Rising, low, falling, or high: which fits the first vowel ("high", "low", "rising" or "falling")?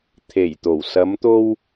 low